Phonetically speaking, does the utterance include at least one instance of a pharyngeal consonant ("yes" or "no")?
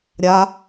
no